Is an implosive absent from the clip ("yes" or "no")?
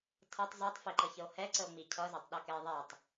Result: no